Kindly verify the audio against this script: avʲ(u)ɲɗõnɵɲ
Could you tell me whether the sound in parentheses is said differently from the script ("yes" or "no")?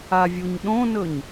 no